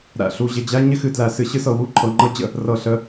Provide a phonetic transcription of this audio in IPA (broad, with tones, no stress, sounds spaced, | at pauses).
ɾ æ̰˨ ɬ u˨ ʑ ɪ˨ d͡ʑ æ˦ ɲ ɪ˦ x ɨ˨ d l æ˨ s ɨ˨ ɕ ɨ˦ s ɤ˨ w u˦ ǃʰ ɤ˨ ŋ͡ǃ ɤ˦ d͡ʑ ə̰˦ | r ɤ˨ ɬ ə˨˦